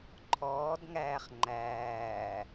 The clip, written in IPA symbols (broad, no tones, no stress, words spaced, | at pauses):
ǃʰɔːdŋæːχ ŋ͡ǃæː